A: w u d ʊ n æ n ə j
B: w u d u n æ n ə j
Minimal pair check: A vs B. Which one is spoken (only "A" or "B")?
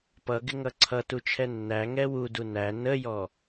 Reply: B